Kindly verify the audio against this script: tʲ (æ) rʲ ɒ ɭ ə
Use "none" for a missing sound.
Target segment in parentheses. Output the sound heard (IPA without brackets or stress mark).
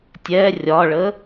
ɛ